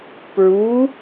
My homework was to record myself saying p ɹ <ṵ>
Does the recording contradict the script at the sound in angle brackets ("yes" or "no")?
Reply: yes